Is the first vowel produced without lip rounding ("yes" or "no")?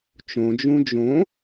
no